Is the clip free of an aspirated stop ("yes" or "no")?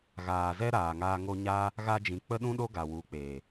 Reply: yes